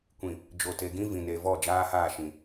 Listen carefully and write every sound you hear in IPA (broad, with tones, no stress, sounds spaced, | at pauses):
kʷ ĩ˨ | d͡ʒ o˨ t e˨ ɡ ĩ˦ v ĩ˨ n e˨ v ɔ˦˨ d͡ʒ aː˦ h aː˦˨ ʃ ĩ˨